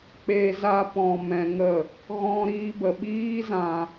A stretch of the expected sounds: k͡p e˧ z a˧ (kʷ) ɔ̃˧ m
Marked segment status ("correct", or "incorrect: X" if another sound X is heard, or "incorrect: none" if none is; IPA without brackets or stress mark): incorrect: p